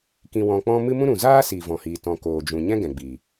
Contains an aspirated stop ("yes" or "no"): no